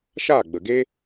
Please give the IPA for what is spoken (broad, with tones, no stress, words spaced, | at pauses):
ʃaː˦˨ɡ͡bə˨ɡe˦